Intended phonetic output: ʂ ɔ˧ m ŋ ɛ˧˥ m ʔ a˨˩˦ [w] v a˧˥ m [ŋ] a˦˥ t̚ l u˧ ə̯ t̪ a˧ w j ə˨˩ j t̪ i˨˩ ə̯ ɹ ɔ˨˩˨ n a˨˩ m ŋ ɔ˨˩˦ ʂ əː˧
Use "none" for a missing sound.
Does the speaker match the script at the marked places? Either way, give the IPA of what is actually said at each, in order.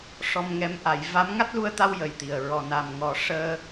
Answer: j, ŋ

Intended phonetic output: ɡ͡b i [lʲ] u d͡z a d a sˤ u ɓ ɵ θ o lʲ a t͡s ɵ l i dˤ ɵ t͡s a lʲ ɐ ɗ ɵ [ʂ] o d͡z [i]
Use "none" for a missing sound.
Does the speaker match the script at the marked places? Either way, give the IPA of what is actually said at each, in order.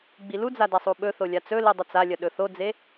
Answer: l, θ, e

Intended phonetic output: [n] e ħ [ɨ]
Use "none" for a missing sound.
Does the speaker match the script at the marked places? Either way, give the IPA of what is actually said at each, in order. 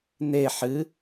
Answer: n, ɨ

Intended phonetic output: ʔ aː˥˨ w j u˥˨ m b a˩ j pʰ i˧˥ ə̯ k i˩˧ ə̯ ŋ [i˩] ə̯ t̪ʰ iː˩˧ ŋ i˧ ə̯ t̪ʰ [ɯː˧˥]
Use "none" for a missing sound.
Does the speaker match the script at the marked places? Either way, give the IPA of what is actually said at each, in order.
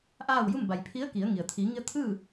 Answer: i˩, ɯː˥˨

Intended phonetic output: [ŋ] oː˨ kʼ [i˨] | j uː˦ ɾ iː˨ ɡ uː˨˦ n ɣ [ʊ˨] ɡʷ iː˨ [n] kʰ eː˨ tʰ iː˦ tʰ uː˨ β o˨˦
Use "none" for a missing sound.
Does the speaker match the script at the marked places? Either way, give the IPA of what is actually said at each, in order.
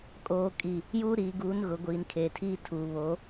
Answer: kʼ, i˨, ʊ˨, n

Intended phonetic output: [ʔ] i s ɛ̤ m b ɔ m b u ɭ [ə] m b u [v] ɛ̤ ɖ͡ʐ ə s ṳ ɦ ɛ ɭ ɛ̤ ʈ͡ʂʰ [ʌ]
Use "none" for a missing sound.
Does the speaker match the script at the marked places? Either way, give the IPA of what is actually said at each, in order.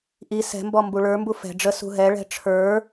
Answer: ʔ, ə˞, f, ə˞

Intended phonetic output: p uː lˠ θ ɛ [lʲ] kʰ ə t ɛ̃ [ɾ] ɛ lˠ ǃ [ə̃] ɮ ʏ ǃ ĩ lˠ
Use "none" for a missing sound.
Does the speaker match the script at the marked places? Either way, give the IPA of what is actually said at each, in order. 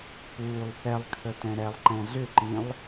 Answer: lˠ, ɾ, ɛ̃

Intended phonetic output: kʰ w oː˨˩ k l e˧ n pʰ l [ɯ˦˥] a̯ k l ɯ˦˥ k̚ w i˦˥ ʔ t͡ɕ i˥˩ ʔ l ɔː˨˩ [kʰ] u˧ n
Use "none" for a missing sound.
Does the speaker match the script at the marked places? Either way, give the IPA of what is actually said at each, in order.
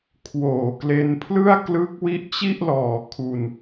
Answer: ɯ˥˩, kʰ

